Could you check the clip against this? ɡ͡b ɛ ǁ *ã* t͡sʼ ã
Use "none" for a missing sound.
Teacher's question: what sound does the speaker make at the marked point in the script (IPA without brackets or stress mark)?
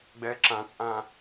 ã